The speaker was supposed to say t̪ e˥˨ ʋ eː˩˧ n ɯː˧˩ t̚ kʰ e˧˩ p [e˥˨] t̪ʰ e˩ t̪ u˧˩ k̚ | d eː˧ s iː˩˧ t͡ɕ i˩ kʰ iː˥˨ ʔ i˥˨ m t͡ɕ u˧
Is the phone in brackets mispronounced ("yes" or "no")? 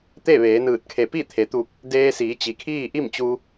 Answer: yes